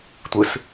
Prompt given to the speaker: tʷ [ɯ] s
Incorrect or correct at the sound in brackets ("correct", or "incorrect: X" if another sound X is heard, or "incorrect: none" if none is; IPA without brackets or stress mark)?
correct